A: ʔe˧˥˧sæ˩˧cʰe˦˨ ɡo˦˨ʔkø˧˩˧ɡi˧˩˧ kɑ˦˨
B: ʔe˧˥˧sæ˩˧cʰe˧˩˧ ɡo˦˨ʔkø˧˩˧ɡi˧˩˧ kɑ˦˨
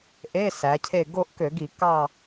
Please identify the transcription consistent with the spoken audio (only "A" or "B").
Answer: A